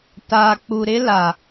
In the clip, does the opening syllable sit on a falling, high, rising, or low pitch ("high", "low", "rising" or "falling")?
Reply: low